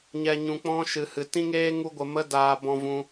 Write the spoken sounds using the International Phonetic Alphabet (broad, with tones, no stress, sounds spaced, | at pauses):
ɲ ɛ˧ ɲ ũ˧ k͡p ɔ̃˦ ʃ ɨ˨ h ɨ˨ t ĩ˦ ŋ eː˦ ŋ u˦ ɡʷ ə˧ m ə˦ d aː˧ b ɔ̃˧ v ũ˧